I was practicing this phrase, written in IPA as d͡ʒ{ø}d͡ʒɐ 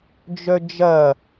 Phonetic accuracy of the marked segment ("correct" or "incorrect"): incorrect